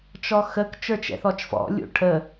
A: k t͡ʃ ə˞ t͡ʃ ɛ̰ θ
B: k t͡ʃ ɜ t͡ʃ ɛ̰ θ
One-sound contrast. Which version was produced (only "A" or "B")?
A